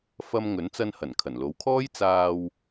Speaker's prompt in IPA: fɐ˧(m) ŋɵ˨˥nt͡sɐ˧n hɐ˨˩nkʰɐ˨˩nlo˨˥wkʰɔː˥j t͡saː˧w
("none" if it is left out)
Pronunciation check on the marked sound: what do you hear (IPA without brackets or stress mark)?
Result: m